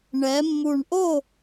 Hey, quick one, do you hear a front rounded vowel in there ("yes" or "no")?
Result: no